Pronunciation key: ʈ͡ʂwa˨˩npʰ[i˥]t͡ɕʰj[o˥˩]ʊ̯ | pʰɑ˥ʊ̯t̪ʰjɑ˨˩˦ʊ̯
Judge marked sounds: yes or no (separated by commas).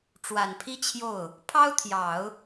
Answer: yes, yes